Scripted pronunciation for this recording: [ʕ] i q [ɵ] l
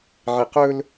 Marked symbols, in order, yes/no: yes, yes

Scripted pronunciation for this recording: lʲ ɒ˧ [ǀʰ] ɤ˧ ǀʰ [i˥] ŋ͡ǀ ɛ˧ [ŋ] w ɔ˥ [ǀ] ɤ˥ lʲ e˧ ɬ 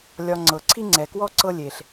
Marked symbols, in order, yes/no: no, yes, no, yes

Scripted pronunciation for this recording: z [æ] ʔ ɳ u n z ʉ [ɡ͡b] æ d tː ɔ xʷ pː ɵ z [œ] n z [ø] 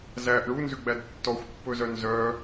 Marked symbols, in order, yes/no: yes, yes, yes, no

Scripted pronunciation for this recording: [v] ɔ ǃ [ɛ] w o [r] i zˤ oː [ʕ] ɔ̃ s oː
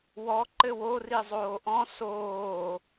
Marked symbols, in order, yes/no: no, no, yes, no

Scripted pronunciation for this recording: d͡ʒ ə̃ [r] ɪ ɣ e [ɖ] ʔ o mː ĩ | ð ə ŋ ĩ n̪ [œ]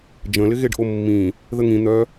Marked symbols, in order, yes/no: no, yes, yes

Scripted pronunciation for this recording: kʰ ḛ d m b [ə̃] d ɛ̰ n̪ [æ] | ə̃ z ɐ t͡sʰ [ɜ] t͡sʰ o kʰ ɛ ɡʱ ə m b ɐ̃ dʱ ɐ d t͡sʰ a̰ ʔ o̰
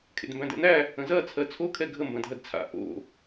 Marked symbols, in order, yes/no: no, yes, yes

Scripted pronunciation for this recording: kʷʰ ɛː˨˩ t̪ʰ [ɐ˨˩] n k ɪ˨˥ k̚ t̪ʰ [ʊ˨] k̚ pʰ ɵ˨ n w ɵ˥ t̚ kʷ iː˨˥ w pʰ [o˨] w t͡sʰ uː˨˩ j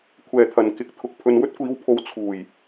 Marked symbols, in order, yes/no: yes, yes, no

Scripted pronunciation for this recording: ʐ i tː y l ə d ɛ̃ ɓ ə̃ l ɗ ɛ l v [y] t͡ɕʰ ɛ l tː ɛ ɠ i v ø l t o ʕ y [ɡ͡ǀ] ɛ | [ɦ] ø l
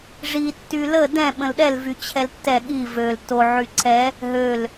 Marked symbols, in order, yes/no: yes, no, yes

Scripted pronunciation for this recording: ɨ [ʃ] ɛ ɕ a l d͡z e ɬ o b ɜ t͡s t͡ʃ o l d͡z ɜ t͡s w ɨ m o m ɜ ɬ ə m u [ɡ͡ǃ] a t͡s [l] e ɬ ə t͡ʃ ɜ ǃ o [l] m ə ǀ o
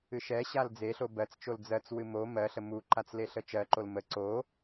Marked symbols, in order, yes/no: yes, no, yes, yes

